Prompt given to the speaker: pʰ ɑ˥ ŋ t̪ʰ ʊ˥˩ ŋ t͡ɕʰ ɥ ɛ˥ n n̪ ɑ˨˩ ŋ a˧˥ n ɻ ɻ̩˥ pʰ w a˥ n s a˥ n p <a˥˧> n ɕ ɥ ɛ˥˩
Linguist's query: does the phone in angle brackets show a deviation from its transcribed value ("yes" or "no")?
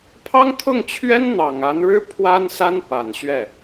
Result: yes